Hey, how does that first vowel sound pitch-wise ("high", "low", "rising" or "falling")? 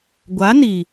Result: rising